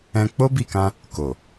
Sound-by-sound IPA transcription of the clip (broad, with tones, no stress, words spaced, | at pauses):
ɛ̃˧k͡po˦bi˦˨kã˧ | ko˨